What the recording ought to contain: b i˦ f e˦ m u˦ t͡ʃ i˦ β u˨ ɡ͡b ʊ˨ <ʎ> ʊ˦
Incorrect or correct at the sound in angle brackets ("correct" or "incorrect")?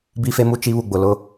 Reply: incorrect